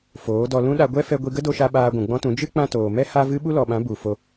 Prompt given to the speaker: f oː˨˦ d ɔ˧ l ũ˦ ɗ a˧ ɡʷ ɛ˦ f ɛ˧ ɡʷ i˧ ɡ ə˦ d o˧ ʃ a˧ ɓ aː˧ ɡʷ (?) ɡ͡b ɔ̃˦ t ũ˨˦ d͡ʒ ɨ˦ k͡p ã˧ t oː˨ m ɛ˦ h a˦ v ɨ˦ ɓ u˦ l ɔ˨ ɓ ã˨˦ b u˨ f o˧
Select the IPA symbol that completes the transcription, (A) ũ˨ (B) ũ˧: A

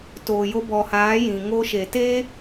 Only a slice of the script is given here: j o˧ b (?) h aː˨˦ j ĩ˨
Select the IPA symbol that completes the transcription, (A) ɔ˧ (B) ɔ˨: B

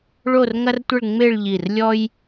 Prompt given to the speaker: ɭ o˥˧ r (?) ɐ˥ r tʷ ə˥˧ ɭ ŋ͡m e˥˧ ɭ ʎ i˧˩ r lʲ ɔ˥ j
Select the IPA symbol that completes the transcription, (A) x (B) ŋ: B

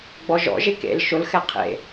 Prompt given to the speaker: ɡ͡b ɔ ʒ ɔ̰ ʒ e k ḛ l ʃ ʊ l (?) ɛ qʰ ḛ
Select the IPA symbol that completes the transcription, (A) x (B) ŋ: A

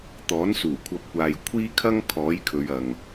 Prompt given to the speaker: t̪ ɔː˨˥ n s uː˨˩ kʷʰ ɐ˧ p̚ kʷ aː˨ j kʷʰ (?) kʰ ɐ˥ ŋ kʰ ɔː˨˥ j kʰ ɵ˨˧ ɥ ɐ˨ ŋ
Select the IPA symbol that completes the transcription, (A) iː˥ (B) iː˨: A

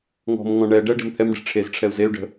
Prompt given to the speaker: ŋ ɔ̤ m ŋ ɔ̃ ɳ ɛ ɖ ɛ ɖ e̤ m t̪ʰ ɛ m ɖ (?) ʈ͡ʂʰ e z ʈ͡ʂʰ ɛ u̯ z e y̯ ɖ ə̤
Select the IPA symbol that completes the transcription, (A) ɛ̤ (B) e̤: A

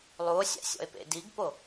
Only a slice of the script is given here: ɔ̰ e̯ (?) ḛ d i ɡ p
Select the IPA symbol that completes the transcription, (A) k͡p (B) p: B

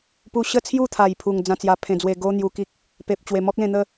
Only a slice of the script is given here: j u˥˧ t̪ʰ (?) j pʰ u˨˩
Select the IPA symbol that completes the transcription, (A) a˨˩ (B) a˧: A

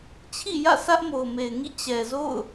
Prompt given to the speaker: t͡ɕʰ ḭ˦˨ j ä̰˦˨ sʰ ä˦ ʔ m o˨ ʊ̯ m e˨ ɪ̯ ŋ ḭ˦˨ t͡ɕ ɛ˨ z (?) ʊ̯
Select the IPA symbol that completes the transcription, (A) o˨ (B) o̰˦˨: B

